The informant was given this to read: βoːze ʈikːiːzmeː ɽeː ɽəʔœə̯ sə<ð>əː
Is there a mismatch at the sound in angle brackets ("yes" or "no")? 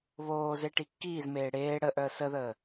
no